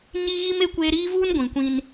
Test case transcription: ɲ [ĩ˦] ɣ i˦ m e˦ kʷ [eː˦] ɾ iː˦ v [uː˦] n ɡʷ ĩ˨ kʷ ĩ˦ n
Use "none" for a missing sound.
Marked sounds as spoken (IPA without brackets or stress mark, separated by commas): i˦, eː˦, uː˦